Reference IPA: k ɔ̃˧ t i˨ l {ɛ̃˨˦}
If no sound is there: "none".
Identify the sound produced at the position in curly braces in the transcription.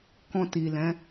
ɛ̃˨˦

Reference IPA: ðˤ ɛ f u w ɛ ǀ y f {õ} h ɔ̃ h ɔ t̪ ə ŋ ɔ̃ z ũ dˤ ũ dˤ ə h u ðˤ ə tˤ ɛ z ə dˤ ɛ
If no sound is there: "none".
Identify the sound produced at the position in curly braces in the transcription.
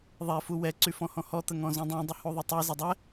ɔ̃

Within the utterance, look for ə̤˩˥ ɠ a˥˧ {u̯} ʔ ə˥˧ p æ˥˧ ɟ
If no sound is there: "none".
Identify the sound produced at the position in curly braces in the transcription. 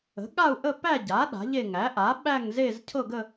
u̯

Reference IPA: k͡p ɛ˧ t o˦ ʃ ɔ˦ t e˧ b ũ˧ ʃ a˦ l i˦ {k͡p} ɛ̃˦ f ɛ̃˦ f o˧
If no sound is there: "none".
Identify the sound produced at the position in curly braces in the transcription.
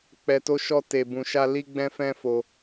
ɡ͡b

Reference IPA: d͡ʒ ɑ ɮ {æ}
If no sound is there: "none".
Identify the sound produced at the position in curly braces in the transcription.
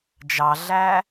æ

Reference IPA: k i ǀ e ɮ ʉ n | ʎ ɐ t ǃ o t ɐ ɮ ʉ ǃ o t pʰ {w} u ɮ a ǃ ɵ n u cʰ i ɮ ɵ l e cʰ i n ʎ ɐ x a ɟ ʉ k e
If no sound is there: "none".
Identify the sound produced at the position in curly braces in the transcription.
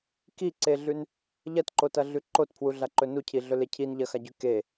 w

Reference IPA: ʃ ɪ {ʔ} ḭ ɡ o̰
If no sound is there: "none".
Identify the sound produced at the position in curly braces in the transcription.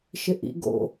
ʔ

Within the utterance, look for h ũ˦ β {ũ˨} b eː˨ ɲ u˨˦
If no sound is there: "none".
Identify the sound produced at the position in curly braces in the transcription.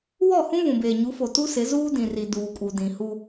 ũ˨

